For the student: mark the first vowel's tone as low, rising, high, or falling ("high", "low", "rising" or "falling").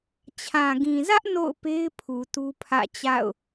low